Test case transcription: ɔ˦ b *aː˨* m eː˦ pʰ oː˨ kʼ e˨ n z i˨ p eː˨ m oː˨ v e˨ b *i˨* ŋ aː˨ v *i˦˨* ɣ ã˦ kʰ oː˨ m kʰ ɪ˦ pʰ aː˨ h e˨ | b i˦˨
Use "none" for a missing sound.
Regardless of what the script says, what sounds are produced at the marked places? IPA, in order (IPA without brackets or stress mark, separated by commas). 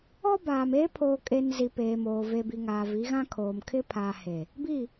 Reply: aː˨, i˨, i˨˦